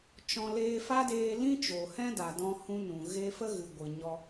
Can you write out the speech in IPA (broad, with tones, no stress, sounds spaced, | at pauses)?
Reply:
t͡ʃ ɔ̃˧ l eː˦ f a˦ d eː˧ l ĩ˦ t͡ʃ o˨ h ɛ̃˦ d a˨ d ɔ̃˧ h ũ˦ n ũ˨ ɣ e˦ f ə˦ ɣ ɨ˨ ɡʷ ɨ˨ ɲ ɔ˧